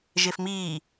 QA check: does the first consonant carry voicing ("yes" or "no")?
yes